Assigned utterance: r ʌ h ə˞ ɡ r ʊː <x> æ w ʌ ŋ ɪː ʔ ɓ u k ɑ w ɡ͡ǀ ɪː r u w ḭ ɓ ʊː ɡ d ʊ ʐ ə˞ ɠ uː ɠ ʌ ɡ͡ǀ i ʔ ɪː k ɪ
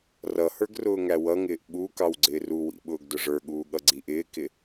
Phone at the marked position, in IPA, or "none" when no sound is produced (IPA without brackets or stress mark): ŋ